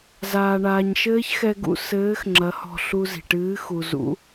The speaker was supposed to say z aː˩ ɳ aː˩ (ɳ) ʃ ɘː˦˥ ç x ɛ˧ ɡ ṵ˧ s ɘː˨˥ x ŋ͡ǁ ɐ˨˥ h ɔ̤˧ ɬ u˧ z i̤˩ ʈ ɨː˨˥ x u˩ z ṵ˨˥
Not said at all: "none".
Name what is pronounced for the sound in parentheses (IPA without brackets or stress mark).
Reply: ɲ